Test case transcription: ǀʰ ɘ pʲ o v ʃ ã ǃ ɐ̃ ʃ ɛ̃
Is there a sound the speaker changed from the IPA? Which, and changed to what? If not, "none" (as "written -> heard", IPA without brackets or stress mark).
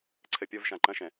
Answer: none